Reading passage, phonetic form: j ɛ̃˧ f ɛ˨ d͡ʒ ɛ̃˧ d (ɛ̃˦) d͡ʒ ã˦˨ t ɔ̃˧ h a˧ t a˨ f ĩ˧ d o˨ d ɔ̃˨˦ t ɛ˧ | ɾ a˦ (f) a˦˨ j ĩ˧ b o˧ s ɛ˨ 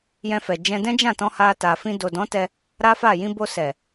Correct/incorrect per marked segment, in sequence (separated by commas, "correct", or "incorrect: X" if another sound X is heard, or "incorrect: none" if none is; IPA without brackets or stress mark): correct, correct